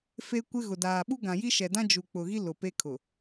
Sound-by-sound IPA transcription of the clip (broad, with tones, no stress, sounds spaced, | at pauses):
f e˦ kʷ ɪ˦ ɣ ʊ˨ d aː˨ ɓ u˦ ɡ ã˨ j i˦ ʃ ɛ˨ d ã˦ d͡ʒ u˨ k͡p ʊ˨ ɣ i˦ l ʊ˨ p e˦ kʰ ʊ˨